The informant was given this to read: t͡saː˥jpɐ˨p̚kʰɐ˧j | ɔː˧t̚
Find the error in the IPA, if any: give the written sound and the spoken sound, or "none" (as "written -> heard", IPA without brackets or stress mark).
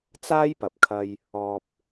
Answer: t̚ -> p̚